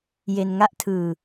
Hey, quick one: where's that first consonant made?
palate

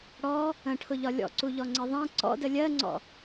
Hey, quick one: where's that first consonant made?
retroflex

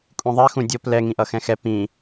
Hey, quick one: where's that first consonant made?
velum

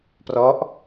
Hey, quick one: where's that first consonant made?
lips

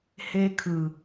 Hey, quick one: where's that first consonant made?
throat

